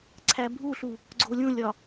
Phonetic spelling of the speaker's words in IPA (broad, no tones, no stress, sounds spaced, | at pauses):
ǀʰ æ bʱ u ɬ u | ɡ͡ǀ o lʲ ũ lʲ ɒ